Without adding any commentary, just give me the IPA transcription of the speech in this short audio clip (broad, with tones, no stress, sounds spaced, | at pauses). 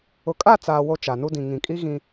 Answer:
ʊ˨ kʼ a˦˨ t͡s aː˨ w o˦ t͡ʃ a˨ n u˦ d ĩ˨ ŋ ĩ˨ kʼ i˦ ɣ ĩ˦